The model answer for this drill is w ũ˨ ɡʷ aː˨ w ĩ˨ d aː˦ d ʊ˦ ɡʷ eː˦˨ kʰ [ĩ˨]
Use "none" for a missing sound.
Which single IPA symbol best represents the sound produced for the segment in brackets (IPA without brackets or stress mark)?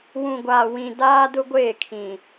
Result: ĩ˨